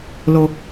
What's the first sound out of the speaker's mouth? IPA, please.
l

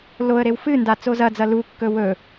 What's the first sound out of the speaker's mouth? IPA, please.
l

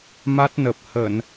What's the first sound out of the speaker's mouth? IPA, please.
m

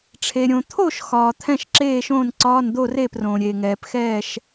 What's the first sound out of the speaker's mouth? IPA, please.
ʈ͡ʂʰ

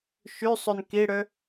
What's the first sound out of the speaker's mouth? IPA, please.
ʃ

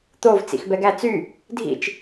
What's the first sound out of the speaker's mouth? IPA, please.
t̪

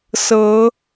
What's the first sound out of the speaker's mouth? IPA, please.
s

